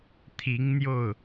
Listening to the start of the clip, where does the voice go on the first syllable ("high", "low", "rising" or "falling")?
rising